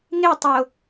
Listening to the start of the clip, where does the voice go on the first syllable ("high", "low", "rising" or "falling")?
falling